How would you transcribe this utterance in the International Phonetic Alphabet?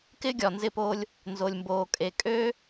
k ɪː˦ ɡʲ ɒ˨ n z ɪ˦˨ p oː˦ lʲ | n z o˨ lʲ m b oː˨ kʼ e˨ kʼ øː˦

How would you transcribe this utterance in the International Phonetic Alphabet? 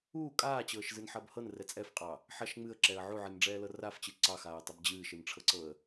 uː kʼ aː t͡ɕ ɤː ʃ z ɨ n ħ ɐ b h ɤ n r ɛ t͡sʼ ɛ f qʼ ɑ | ħ ɐ ʃ ŋ͡m ɨ ə̯ ǁ ɛ ə̯ ʕ u ʕ ɨ n ɖ͡ʐ ɛː l ɤ r a f t͡ɕ ɨ ǀ ɑ x aː ə̯ tˤ ɐ b d͡ʑ ɨː ʃ ɨ n ʈ͡ʂʰ ɤ ǀ ɤ ə̯

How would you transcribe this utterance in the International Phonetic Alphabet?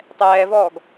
tˤ ɛː v ɔː ɡ

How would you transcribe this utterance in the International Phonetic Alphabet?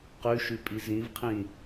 q ʉ ʃ ʉ pʼ i z ĩ v qʰ ĩ

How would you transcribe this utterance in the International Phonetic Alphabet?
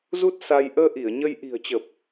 z u˦˥ t̚ s a˧ j ʔ əː˧ ʔ i˧˩ ə̯ ɲ ə˧ j ʔ i̤˨˩ ə̯ t͡ɕ ə˨˩ p̚

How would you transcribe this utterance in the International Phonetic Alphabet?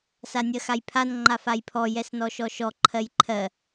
s a nʲ ɜ x a j pʰ a n ŋ͡ǃ a f a j pʰ ɔ j ɛ s n ɔ ʃ ɔ ʃ ɔ ǃʰ ɜ j ǃʰ ɜ

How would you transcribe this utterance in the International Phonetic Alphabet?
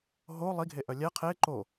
ɦ o lˠ i ɡʱ e ʔ œ lʲ ɛ qʰ e ǃ o

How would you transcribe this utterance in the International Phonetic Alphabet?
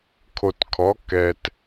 kʰ o˨ t kʰ ɔ˨˦ k ɛ˨ t

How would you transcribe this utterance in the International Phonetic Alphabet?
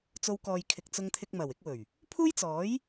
t͡s o˧ w k ɔː˨ j kʰ ɪ˨ k̚ t͡s ʊ˧ ŋ t̪ʰ ɪ˧ k̚ m ɐ˨˩ w ɪ˨˥ k̚ w ɵ˨˩ ɥ | pʰ uː˥ j t͡s ɔː˨˥ j

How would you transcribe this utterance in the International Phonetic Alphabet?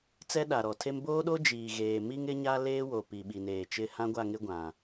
t͡s ɛ˦ ɗ a˨ ɾ ɔ˨ tʰ e˦ m b oː˦ ɗ o˦ d͡ʒ iː˨ ɣ eː˨ m i˦ ŋ ɪ˦ ɲ a˦ l eː˦ w o˨ p i˨ ɓ i˨ n eː˨ t͡ʃ ɪ˦˨ h ã˦ ɡʷ a˦˨ ŋ ɪ˦ ɡʷ ã˨

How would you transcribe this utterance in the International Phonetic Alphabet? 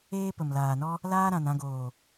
eː˦ p ə˨ m l aː˨ n ɔ˦ | l aː˦ ɾ ã˨ n ã˧ ɡ oː˨

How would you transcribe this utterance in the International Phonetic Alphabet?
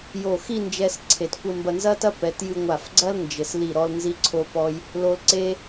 j o˧˩ x i˥˧ n d͡ʒ ɛ˧ s ǀʰ e˧˩ t kʷ ɘ˥˧ m b ɐ˥˧ n z ɐ˥ t ɐ˥ p ɛ˩˧ t j ɨ˧ ŋʷ a˧˩ f ɡ͡ǀ ɐ˥ l n d͡ʒ ɘ˩˧ s l i˧˩ ɾ ɔ˧ l n z i˧ ǀʰ o˧ p ɔ˧ j | l o˧ l ǀ e˥

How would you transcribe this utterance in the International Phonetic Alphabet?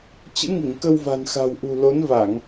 t͡ɕ ɨ̰˧˥ ŋ i˧˩ ŋ k ə˧ w v a̤˨˩ n x a̤˨˩ w ʔ ṳ˨˩ l o˨˦ n v a˧˩˨ ŋ

